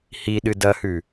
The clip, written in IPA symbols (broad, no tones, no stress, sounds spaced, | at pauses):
h i ɗ ɨ d ɐ h ʉ